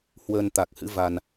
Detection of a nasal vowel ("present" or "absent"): absent